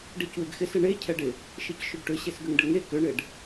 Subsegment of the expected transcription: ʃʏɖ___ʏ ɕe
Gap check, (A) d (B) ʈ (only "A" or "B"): B